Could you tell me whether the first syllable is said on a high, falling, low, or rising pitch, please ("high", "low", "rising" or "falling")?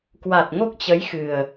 low